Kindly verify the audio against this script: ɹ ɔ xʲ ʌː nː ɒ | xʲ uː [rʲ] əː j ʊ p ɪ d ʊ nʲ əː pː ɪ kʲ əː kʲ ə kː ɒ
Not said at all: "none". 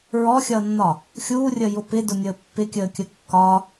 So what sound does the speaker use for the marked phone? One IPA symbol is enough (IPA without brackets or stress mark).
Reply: rʲ